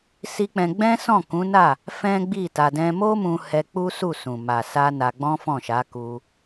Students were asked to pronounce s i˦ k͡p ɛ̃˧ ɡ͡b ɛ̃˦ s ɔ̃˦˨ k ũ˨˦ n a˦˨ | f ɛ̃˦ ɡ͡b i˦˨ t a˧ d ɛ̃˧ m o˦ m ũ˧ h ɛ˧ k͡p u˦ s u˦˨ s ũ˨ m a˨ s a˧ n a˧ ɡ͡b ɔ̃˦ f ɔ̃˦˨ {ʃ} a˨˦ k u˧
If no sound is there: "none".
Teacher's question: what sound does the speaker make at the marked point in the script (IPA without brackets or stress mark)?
ʃ